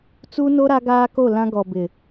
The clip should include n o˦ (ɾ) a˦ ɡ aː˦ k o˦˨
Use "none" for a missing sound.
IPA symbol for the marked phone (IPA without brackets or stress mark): ɾ